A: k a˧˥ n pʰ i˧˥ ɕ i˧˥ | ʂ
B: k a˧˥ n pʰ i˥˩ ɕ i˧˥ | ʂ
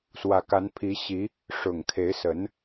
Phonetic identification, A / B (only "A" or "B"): A